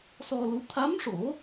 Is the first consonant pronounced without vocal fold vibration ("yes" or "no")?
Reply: yes